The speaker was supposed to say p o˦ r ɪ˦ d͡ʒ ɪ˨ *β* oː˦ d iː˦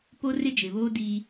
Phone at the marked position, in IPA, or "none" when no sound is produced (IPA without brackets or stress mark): β